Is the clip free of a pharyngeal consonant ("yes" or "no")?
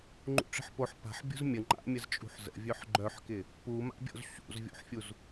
no